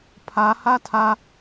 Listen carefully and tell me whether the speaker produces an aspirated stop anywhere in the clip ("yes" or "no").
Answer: yes